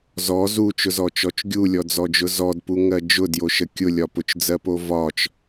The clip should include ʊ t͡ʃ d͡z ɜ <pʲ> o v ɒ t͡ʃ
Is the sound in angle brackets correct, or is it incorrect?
incorrect